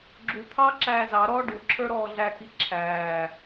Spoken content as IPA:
ɡ͡ǁ u t̪ʰ ɑː ǁ æː z ɑ ɾ ɔː ɖ u ǁʰ ə˞ ɾ ɔː ɮ æ k i ǁʰ æː

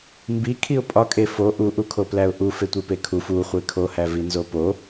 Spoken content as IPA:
m b i kʰ i ʊ̯ pʼ ɒ kʼ e f o ʔ u ʔ u kʰ o p l æ ʊ̯ ʔ u f e tʷ e p e kʰ u f u χʷ e kʰ o h æ v i n z o p o

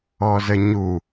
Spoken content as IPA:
ɔ z ə ɲ u

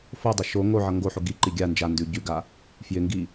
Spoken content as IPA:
f o dˤ ʌ ʃ o ŋ o ʕ ʌ ŋ ɡ o ħ o ɡ i ǃ i ɡʲ a n d͡ʒ a n d ʉ ɟ ʉ ɡ a | f j ɪ ŋ ɡ i

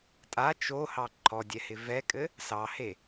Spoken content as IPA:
tʼ a t͡ʃ o h ɑ ǃʰ ɔ dʲ ɛ h ɪ v ɛ kʼ ɘ | s ɑ h e

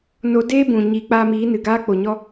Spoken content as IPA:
n o˦ d eː˦ b ũ˨ ɲ i˨˦ k͡p a˧ m iː˨˦ n ɨ˨ ɡ aː˦ k͡p o˨ ɲ ɔ˦

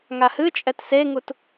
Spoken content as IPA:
ŋ a h ɨ t͡ʃʼ ɛ t s e ŋ u t

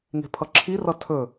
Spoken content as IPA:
ŋ e̤ pʰ ʌ ǁʰ i r ʌ tʰ ɵ

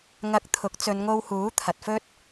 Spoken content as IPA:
ŋ ɐ˧ k̚ t̪ʰ ʊ˨˥ k̚ t͡s ɵ˨˧ n ŋ o˧ w h uː˨˥ t̪ʰ ɐ˨ t̚ f ɵ˥ t̚

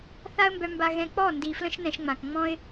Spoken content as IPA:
θ a˦ ə̯ m b œ˧ m b a˧ ɣ ɛ̃˧ k͡p ɔ˦˨ n d i˨ f l ə̃˦ ʃ n ɛ̃˧ ʃ ŋ͡m ã˨ k ŋ͡m ɔ̃˦ ɪ̯

